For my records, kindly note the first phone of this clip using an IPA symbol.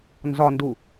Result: n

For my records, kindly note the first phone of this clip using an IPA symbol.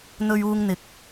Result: n̪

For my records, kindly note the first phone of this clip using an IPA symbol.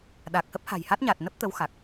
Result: ɗ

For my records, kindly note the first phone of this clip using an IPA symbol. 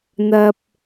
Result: n̪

